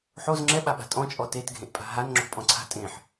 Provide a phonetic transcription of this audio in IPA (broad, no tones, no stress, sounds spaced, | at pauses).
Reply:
ħ o z ŋ͡ǁ ɛ ɓ a ɓ a̤ tʼ ɔ̃ t͡ʃʼ ɔ t e t ɡʱ ẽ ʔ pʼ a̤ ɦ a n ŋ͡ǁ o̤ pʼ ɔ̃ ǀʰ a̤ tʼ ẽ ħ